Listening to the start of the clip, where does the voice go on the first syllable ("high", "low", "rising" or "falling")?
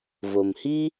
low